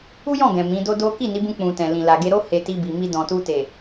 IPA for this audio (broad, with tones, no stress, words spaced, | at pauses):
u˦jɔ̃˦˨ɡɛ̃˨ mĩ˨˦do˦do˦ ki˦˨ni˨˦ bũ˧k͡pũ˨tɛ̃˨ lĩ˨ la˨ɡe˧ɾo˦ he˧ti˧bi˨mi˧ dɔ̃˨tu˧te˨